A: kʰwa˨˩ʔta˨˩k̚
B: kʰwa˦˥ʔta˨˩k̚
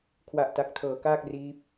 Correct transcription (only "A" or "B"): A